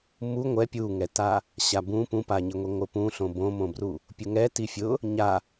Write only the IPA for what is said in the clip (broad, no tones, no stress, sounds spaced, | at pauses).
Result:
m u ŋʷ ɛ pʲ u ŋ ɛ t a | ɕ a b ũ p ũ p a ɲ ɪ ŋʷ i ŋʷ ɪ p ũ ɬ õ b õ m õ b r u | pʲ ʊ ŋ ɛ t i fʲ ʊ | ɲ a